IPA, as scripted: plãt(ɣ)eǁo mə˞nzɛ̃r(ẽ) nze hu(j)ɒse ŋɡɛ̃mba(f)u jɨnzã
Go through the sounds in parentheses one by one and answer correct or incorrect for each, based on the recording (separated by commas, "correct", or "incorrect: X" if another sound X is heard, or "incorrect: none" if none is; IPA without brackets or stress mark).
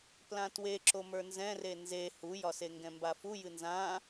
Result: incorrect: w, incorrect: e, correct, correct